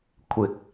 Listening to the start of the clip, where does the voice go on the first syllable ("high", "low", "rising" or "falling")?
low